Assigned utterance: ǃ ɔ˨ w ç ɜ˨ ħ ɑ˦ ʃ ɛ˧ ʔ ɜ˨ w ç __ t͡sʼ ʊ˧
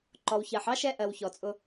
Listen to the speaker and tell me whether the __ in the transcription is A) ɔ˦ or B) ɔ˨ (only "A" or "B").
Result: B